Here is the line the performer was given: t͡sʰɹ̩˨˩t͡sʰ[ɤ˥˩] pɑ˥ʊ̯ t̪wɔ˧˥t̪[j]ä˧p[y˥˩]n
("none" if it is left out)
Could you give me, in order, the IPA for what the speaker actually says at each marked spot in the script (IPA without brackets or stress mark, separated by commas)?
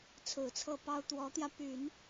ɤ˥˩, j, y˨˩˦